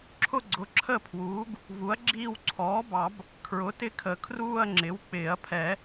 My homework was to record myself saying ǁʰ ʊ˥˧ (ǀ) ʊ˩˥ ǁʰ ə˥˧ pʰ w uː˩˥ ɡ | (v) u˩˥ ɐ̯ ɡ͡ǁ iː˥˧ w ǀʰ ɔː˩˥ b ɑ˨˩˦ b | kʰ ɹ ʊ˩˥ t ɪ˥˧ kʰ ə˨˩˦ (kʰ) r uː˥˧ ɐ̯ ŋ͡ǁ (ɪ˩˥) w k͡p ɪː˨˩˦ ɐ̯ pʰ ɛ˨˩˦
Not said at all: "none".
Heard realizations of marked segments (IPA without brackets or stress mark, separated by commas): ɡ͡ǀ, v, kʰ, ɪ˩˥